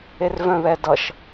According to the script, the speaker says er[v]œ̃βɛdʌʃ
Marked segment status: correct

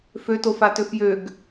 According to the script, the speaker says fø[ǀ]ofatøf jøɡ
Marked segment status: incorrect: t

